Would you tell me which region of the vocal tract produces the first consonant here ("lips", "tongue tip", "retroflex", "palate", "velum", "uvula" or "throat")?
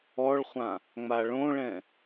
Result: retroflex